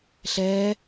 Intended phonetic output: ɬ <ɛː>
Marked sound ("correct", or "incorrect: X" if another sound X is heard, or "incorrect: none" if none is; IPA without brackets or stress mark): correct